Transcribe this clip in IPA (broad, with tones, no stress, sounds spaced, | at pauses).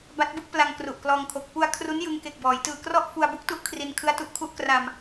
b a˦˥ t̚ b ɯ˥˩ k̚ p l a˧ ŋ k r u˨˩ ʔ k l ɔː˧ ŋ kʰ o˨˩ k̚ p u˧ a̯ kʰ r u˦˥ n j ɯ˧ ŋ k e˨˩ k̚ b ɔː˩˦ j t ɯː˨˩ k r ɔ˥˩ ʔ f u˧ a̯ b u˦˥ k̚ t u˦˥ ʔ kʰ r i˧ n kʰ ɯ˦˥ a̯ t u˨˩ ʔ kʰ u˦˥ ʔ k r a˧ m